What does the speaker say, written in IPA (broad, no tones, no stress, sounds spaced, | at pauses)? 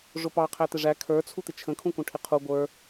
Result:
ʐ ʊ p ɑ qʰ æ t̪ ɪ ʐ æ kʰ ə˞ t͡sʰ u t̪ ɪ t͡ʃʰ ə̃ kʰ ũ k ũ ʈʰ ɪ qʰ u ɡʷ ə˞